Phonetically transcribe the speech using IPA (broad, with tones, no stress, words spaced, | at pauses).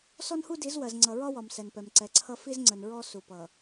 sɔ˦nhu˦di˨˦zwɜ˨z ŋ͡ǀʌ˨ɹɒ˦wɒ˨m sɛ˨npɛ˨m ǀɛ˨ǀʰʌ˦ fi˦zŋ͡ǀə˨n ɹɔ˦ su˨pʌ˨